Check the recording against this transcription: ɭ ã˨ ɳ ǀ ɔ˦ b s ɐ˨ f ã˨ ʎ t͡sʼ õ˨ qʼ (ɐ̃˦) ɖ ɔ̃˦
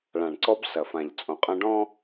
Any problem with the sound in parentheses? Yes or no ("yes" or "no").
no